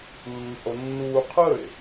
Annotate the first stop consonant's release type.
aspirated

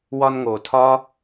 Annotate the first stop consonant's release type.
aspirated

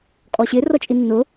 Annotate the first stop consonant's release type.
ejective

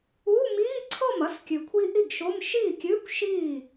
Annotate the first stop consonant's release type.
click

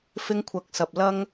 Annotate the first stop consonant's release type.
aspirated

